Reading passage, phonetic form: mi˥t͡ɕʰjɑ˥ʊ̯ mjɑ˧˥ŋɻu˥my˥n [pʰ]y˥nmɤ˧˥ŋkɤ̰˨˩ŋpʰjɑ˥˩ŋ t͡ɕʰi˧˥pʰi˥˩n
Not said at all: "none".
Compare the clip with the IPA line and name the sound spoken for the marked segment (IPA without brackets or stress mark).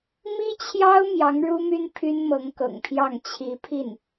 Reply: pʰ